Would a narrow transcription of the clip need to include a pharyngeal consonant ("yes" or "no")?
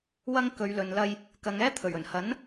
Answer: no